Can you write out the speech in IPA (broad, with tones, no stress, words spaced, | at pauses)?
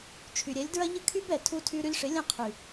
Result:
t͡ʃʰy˨ɾʲɛ˨˦lʲdɹɐ˦ ʎə˦kʰy˦bɛ˨ tʰu˧tʰy˧ ɾy˧lʲʂɪ˨˦lʲɐ̃˦˨ qʰy˨